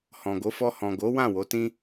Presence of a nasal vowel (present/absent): present